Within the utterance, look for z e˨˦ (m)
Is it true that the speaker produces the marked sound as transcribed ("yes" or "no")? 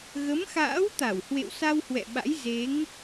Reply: no